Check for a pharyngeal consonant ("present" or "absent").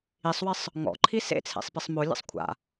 absent